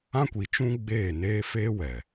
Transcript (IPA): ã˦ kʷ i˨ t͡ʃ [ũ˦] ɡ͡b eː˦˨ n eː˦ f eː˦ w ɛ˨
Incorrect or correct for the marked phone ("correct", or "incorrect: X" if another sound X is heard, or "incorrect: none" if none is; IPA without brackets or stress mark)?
correct